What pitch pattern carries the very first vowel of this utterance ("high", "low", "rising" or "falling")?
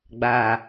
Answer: low